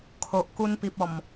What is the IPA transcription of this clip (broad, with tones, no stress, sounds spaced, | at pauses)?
kʰ o˨ ʔ k u˧ n p i˨ p̚ ɔ˨˩ m